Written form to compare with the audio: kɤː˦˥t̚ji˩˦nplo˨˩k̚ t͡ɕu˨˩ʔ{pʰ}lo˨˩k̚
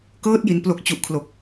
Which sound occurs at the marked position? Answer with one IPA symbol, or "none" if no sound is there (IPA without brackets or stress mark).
kʰ